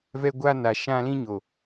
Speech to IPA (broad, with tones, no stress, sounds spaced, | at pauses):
v ɛ˦ ɡʷ a˦ n a˨ ʃ ã˦ l ĩ˦ ɲ o˨